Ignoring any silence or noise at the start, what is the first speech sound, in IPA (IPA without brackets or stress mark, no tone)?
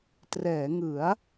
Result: t